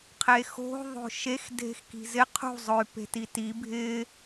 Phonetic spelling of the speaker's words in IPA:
qʰ e x o̤ ðˤ o̤ ʃ e x dʱ e̤ x k i̤ z ɪ qʰ ṳ zˤ ʊ y̯ p e̤ t i t i bʱ ɪ

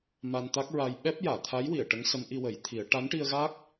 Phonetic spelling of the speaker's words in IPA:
m a˧ n t̪ a˦˥ k̚ ɹ a˧ j ɓ ɛ˦˥ p̚ j aː˨˩˨ t̪ʰ a˧˥ j w i˨˩˨ ə̯ ʈ ə˧˥ ŋ s ə˧˥ m ʔ i˧ w ə˨˩˦ j t̪ʰ i˨˩˦ ə̯ ʈ a˧˥ n ʈ i˧ ə̯ ɣ a˦˥ k̚

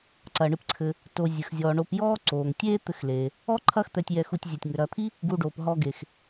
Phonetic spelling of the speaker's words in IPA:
ǀ ɐː˩ ɳ ɨ˨ p ǀʰ ɘ˨ | t o˨ zʲ ɨ˩ x zʲ ɔː˩ ɳ o˨ p j ɔː˦ ǀ oː˩ ŋ tʲ eː˦ t̪ ɘ˨ x l eː˩ | ɔ˥ ǃʰ ɐː˦ x t̪ ɛ˨ tʲ j ɛ˨ x u˨ tʲ zʲ ɛ˩ tʲ ŋ ɘ˩ ɾ ɐː˨ t̪ʰ i˥ | ɡ u˨ ɖ oː˩ p ɦ ɔ˨ ɡ e˩ x

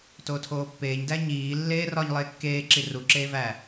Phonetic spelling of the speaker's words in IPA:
t oː tʰ oː pː eː ɲ d æ ɲ iː lː eː r ɒ ɲ lˠ eː kː eː ǁ i r u ǁ eː v æ

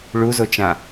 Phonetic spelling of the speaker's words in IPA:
ɭ u z o t͡ʃ ã

